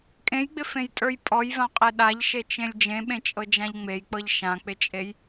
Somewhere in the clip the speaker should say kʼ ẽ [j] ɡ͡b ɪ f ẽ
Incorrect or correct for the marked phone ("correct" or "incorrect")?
correct